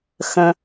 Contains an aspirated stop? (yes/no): no